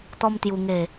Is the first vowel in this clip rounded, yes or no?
yes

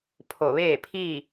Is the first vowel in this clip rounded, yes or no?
yes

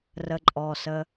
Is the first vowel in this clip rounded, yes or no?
no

